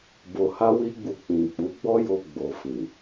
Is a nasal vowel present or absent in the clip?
present